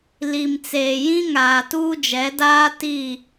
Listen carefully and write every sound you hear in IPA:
l i˨ m t͡s eː˨ j ĩ˦ ŋ aː˨ t uː˦ d͡ʒ ɛ˨˦ d aː˦ t i˦˨

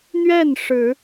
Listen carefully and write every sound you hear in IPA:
n̪ ɥ ɛ˥˩ n ʂ ɻ̩˨˩˦

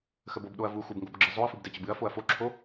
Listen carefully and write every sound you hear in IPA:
x ə b o b ɗ o ɐ̯ v u x u b ŋ ɡ o b ɡ͡ǁ ə zˤ o ɐ̯ f ɨ b d ɛ t͡ɕ ə b ɨ ɐ̯ f o ɐ̯ f o ǁʰ o

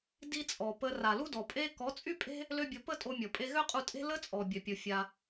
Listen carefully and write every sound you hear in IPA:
d i˦ t͡sʼ ɔ˨ p ə˧ r a˨ l u˦ d ɔ˨ pʼ e˦ k ɔ˨˦ t͡sʼ y˦ pʼ e̤˦ | l ø˦ bʲ o˧ p ə˦ tʼ o˧ mʲ ɔ˨ pʼ e˧ ɣ ø˦ qʼ u˧ tʼ e̤˦ l ə˦ t͡sʼ ɔ˨ bʲ œ˨ pʲ u˨ fʲ a˧

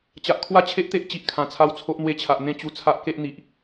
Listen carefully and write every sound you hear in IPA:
t͡ɕ a˨ ʔ kʰ w a˥˧ t͡ɕʰ e˦ ʔ t̪ e˦ ʔ t͡ɕ i˨ ʔ kʰ ã˨˩ t͡sʰ a˦ w t͡sʰ o˦ ʔ n̪ w e˧ t͡ɕʰ a˨ ʔ n̪ ẽ˥˧ t͡ɕ u˧ t͡sʰ a˦ ʔ k e˦ ʔ n̪ i˨ ʔ

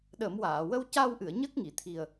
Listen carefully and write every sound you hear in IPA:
ɗ ə˨˩˦ m w aː˨˩˨ w ə˧ w c a˧ w ʔ ɨ˨˩˨ ə̯ ɲ əː˦˥ k̚ ŋ i˨˩˨ t̪ʰ i˨˩ ə̯

